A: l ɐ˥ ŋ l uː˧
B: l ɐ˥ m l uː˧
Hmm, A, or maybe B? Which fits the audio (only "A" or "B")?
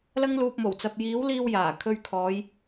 A